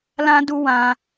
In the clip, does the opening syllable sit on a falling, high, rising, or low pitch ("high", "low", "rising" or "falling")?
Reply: high